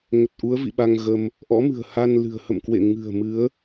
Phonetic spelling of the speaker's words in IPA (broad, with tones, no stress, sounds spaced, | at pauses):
ŋ ə˨˩ t̚ ʔ u˨˦ ə̯ v ḭ˧˨ ɓ a˧ ŋ ɣ ə˧ m | ʔ ɔ̰˧˥ m ɨ̤˨˩ ə̯ h a˧ n l ɨ̤˨˩ ə̯ h ə̰˧˨ m k w ḛ˧˨ ŋ ɨ̤˨˩ ə̯ m ɨ˨˦ ə̯